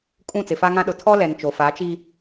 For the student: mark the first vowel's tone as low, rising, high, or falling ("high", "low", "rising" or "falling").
falling